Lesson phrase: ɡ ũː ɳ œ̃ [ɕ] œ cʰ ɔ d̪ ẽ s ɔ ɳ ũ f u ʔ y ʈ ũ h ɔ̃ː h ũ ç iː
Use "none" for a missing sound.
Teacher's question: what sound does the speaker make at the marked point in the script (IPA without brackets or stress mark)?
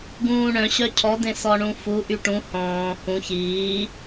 ɕ